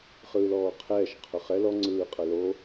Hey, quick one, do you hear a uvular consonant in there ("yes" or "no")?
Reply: yes